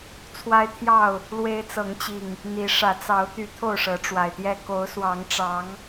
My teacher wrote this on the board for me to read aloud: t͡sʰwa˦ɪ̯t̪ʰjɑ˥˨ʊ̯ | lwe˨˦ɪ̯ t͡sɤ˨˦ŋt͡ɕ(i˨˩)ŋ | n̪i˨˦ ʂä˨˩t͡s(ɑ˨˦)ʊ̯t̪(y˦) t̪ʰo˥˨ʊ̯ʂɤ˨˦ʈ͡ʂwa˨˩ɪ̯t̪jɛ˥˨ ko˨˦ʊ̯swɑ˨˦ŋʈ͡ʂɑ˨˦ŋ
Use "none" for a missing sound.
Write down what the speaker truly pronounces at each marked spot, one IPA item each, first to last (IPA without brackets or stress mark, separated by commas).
i˨˩, ɑ˨˦, y˨˦